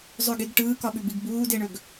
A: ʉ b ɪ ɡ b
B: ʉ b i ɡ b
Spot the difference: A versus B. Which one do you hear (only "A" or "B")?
B